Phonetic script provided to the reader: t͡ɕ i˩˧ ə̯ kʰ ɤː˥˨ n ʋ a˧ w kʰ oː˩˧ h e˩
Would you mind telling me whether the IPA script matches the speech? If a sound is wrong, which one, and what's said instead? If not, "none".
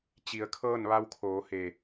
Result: none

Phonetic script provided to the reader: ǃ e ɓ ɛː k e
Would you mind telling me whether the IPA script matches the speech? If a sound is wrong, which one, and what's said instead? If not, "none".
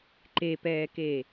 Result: ɓ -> p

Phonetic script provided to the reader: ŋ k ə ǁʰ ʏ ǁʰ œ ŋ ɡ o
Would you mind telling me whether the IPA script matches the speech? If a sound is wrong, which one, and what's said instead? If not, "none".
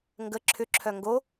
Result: k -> ɡ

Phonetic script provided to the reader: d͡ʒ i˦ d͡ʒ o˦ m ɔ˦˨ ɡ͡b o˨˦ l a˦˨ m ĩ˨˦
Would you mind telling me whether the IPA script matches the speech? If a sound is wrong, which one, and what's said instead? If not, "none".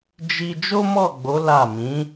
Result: none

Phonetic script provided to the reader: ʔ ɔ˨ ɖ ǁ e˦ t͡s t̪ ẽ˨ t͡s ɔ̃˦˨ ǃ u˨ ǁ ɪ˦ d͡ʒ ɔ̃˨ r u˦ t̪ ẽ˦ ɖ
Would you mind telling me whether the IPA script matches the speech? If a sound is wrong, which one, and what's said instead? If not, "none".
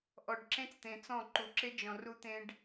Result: e˦ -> ẽ˦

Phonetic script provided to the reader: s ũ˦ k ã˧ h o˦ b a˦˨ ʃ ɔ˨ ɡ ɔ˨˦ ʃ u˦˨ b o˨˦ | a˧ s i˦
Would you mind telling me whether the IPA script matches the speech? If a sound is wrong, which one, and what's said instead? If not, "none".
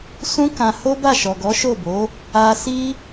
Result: u˦˨ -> o˦˨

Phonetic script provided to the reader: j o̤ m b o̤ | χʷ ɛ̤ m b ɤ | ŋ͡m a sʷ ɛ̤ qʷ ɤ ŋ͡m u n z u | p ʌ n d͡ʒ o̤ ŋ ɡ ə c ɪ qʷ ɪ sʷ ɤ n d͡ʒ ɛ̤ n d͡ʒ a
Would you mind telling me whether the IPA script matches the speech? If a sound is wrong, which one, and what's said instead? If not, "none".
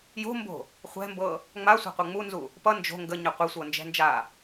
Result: c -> ɲ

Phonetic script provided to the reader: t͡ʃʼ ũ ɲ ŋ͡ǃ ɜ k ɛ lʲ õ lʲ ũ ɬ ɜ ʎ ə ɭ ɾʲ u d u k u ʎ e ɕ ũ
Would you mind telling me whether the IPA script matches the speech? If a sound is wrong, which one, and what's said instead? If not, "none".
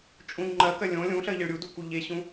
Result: ɛ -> ɜ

